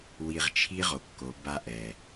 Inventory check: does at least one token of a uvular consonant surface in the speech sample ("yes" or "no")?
yes